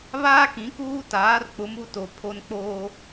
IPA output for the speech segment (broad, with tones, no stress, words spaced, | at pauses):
βaː˦kĩ˨˦ kuː˦taː˨˦r k͡pʊ˨˦ mu˦to˨pʰo˦n k͡poː˦